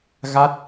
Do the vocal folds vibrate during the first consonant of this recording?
yes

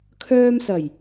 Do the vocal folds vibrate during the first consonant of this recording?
no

